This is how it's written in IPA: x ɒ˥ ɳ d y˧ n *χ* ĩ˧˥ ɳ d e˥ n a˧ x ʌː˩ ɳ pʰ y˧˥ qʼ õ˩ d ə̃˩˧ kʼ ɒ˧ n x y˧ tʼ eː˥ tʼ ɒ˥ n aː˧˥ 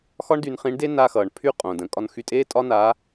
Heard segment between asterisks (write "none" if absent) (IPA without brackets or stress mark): χ